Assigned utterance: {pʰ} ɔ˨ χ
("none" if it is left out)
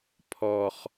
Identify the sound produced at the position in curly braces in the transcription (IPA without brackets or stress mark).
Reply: pʰ